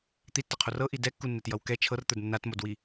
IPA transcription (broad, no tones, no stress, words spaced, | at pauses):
t̪itːʌqʰor ɤʔi dɛkːunːɛtjʌw kɛ t͡ʃʰɤrt̪ə˞d nːatmodwi